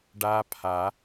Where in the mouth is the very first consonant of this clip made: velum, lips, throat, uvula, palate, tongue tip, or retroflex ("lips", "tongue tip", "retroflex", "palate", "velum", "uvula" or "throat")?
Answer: retroflex